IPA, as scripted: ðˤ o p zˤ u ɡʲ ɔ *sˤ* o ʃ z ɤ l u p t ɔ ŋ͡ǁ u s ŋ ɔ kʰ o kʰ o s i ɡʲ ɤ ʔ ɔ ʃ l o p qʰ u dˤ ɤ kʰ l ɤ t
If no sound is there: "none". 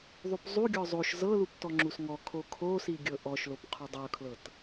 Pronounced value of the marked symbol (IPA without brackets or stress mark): zˤ